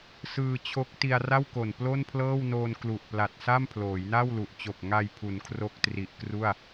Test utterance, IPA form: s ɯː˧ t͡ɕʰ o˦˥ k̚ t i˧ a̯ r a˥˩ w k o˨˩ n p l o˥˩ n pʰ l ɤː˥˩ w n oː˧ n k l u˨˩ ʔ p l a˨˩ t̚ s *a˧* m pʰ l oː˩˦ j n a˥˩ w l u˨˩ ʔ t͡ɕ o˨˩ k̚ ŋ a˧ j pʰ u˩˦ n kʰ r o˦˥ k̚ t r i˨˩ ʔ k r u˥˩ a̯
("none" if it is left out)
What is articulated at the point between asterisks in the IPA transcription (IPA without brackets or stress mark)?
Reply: a˥˩